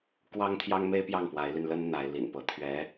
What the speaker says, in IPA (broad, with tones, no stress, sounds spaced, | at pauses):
k w ɑ˥ ŋ t̪ʰ j ɑ˥ ŋ m e˥ ɪ̯ p j ɑ˥˩ ŋ p w a˧˥ ɪ̯ l y˧ n l ə˥ n n̪ a˧˥ ɪ̯ l ḭ˨˩ n p ɤ˧˥ t̪ʰ ɥ ɛ˧˥